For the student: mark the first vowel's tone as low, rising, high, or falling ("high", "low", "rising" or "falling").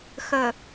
low